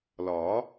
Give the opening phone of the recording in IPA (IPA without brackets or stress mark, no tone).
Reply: l